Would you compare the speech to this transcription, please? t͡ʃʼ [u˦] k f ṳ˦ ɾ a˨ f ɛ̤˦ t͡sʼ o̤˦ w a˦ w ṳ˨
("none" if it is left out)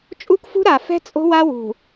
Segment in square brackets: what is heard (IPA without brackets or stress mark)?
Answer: u˦